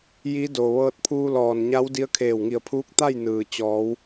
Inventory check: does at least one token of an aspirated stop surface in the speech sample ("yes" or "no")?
yes